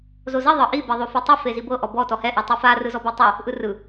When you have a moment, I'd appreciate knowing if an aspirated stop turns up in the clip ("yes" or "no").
no